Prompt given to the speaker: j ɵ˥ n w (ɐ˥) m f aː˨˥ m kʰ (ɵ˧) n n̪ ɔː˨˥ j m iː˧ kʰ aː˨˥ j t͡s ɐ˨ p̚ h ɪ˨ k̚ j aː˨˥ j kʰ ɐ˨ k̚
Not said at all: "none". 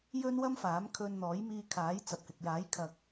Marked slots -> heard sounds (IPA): ɐ˥, ɵ˧

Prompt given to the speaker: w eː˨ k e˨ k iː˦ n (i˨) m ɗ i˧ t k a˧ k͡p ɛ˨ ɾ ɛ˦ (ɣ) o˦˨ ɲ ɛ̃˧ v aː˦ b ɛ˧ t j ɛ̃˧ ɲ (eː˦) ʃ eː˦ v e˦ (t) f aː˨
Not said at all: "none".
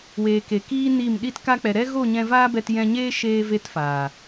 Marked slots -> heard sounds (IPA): i˦˨, ɣ, eː˦, t

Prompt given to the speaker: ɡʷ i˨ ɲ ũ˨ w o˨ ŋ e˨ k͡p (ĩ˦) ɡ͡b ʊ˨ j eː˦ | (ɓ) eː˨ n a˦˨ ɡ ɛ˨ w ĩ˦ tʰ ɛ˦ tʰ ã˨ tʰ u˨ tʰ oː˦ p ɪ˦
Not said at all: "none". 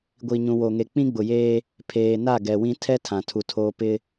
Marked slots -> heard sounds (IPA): ĩ˦, pʰ

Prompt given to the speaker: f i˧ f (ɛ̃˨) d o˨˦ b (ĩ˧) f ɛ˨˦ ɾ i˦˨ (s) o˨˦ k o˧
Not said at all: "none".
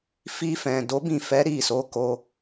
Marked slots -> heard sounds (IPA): ɛ̃˨, ĩ˦˨, s

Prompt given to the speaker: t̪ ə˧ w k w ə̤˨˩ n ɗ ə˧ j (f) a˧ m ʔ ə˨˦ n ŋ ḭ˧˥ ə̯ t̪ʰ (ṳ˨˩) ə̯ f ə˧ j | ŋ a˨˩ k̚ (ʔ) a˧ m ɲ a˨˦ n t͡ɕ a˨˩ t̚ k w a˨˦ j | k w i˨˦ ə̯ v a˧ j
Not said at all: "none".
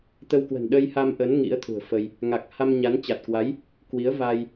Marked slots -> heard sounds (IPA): h, ṳ˨˩, h

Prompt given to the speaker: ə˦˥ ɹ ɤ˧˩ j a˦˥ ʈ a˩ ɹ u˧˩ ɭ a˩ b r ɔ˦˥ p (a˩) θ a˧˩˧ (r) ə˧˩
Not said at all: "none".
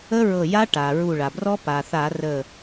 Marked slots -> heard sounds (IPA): a˩, r

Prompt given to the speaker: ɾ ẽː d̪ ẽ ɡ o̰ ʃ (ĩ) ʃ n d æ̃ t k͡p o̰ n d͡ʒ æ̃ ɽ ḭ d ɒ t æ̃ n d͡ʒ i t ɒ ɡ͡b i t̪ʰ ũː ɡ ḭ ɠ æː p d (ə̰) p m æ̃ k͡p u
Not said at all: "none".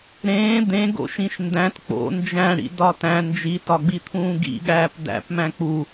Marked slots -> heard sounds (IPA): ĩ, æ̰

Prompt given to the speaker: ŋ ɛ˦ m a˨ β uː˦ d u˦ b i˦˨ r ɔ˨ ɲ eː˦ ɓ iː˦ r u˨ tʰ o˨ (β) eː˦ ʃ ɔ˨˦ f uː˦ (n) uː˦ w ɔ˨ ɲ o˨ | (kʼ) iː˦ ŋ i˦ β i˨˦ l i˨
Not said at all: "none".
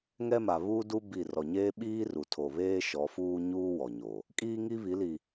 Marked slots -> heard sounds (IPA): β, ɲ, kʼ

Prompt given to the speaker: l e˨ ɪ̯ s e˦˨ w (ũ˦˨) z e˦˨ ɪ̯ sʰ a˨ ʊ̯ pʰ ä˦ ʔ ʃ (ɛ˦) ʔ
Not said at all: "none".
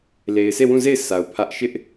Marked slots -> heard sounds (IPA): ũ˦˨, ɪ˦

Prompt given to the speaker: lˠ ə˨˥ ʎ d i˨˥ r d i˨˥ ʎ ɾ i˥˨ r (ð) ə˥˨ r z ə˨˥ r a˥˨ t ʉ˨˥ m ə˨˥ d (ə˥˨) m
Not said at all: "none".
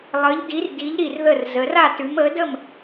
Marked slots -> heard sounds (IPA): ð, ə˥˨

